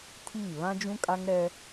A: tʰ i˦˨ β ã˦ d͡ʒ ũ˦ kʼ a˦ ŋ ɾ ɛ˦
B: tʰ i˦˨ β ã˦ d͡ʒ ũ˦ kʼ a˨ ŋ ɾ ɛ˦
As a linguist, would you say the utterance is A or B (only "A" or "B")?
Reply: A